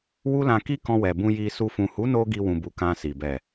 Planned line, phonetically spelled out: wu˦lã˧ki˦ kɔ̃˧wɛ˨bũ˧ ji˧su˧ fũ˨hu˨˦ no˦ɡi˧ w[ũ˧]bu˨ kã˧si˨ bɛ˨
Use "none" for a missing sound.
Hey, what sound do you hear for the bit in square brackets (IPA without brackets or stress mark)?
ũ˨